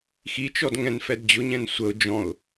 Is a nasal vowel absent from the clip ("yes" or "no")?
no